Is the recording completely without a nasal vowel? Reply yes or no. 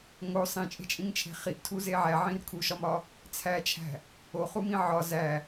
no